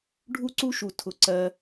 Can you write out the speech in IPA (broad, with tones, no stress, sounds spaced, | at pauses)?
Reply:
ɖʱ u˥ ǀ u˥ ʃ u˩ tʰ ʊ˩ ǀ ɜ˩